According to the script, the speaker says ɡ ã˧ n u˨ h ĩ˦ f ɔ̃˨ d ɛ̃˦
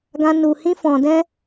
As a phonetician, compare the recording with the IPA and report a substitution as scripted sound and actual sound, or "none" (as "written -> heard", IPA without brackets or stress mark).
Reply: none